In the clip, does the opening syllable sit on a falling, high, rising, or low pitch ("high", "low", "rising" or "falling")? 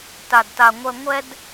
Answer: low